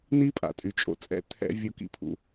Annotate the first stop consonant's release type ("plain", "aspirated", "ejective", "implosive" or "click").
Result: ejective